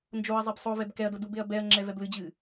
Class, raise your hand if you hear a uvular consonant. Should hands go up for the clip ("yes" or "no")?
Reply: no